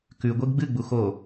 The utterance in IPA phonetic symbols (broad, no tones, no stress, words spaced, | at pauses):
kʉɡʷeɡ ɡ͡bɨɡ͡bu xo